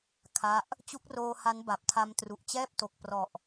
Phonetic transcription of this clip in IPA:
kʰa˦˥ʔ | t͡ɕu˦˥k̚roː˧ ha˦˥nba˨˩p̚tʰa˧m tru˨˩ʔt͡ɕɛː˥˩p̚to˨˩k̚ prɔ˨˩ʔ

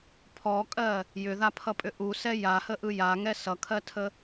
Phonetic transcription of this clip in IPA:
pʰɔkʼɜ | jʏðapʰʌpʼʏ ʔusɛ jahəʔɯ jaŋɛ sʌkʰɜtʰə

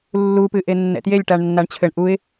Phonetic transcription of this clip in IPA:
lːupɨʔe nːɛ̰tjelʲ ʈaɳnːaɳt͡ɕʰɘɳ ʔuɪ̯

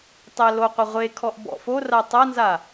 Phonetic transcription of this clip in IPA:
tˤæloqʷɛ ʁʷekʰɔʔ bɔ̰fora tˤanza

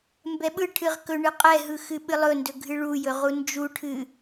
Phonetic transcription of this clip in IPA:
mbɛɓɯʈʰɨʁ kɵɳɨ qʼɛɦɯ xɨɓɨlˠɵndɵ ɡʱɨɭujɵ ʁund͡ʒuʈʰɨ

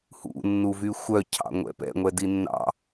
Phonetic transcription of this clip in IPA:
hṵ nːuvyxʷœ cʰɑ̰ŋʷɛ̰pɛ̰ ŋʷɛdinːɑ̰

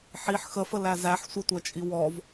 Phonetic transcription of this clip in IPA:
ħiħ xəfə læzæħ sʷətʷæt͡ʃʼi wɔv

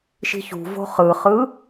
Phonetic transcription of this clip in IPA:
ʃi̤çṳvo̤ χɯχɯ

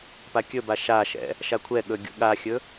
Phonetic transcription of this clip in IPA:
pakʲɵba ʃaʃɛ̰ | ʃakʷʰɛɠɵ ɡʲṵɠaxʲɵ

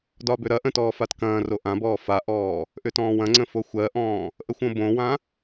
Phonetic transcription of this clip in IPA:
dɒbʏɾɐʔə̃ tɔːfatkɐ̃ːro ʔãbɔː faʔɔː | ʔʏtɔ̃ːwɐ̃ŋ͡ǀə̃ foxʷɜʔɔ̃ː | ʔəxʷõbõwã

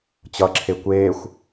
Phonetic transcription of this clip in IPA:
t͡ɕʌǁʰe kʷeːxʷ

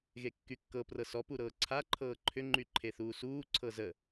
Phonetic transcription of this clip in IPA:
ɣekːykːɤ prɤsɔ puɾɤːǀʰa ǃʰɤːǃʰʏ ŋ͡ǃyǃʰeθuːsuː ǀʰɤzə

